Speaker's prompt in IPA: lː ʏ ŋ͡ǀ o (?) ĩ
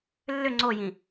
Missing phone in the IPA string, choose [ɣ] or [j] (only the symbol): j